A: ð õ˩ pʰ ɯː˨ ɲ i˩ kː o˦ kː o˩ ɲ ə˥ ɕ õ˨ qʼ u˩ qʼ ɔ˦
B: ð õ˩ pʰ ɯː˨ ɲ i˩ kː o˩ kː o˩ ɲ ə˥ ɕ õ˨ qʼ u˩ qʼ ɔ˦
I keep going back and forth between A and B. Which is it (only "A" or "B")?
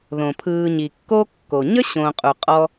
A